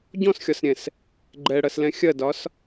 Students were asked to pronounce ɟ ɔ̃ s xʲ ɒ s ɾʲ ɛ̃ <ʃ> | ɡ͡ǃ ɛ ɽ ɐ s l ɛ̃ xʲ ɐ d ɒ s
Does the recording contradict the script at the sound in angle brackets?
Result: yes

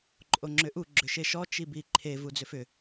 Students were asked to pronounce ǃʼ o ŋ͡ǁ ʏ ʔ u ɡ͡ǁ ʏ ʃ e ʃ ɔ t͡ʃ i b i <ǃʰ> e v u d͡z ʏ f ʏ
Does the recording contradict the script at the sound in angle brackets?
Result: no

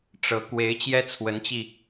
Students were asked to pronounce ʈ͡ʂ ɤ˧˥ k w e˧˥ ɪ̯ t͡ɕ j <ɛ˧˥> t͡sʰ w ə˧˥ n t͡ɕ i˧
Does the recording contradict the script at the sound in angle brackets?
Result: yes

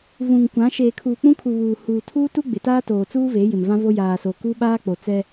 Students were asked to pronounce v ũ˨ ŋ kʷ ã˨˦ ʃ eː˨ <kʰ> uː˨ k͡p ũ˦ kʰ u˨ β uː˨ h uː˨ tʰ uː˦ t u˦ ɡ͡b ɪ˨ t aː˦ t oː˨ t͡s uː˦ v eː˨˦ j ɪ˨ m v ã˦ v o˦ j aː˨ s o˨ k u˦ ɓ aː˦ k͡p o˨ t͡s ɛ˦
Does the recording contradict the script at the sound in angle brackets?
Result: no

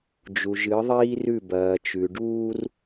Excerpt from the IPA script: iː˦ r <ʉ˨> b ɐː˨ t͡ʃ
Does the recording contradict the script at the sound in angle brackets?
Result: yes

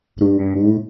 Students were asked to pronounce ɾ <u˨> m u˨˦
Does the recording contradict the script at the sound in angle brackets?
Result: no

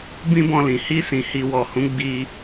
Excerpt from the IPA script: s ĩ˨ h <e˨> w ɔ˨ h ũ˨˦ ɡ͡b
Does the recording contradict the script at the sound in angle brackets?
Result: yes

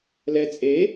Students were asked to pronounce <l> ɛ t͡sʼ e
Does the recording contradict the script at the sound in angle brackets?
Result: no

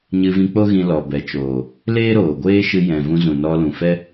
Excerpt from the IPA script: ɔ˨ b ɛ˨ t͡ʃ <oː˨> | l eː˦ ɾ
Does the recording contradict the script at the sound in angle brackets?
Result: no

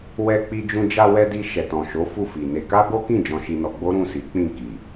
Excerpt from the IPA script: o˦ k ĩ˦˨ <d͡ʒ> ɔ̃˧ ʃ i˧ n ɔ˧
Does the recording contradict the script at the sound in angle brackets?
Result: no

